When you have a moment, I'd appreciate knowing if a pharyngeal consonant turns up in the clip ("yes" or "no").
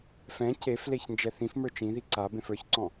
no